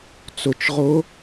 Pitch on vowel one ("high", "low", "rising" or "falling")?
low